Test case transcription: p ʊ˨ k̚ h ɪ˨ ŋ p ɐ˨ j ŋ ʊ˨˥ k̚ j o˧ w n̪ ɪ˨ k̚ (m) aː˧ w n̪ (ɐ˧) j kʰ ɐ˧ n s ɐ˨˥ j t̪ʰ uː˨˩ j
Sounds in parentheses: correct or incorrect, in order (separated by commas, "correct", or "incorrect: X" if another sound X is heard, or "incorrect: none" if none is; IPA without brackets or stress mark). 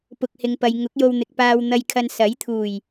incorrect: p, correct